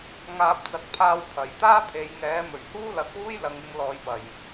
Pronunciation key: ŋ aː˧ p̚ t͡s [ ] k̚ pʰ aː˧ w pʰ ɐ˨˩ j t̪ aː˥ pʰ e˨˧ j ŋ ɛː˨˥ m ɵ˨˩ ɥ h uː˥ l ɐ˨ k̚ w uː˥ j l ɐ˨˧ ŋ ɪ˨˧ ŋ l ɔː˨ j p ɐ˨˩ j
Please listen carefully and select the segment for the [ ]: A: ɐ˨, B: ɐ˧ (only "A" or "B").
A